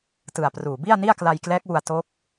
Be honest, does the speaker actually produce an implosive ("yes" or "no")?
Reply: no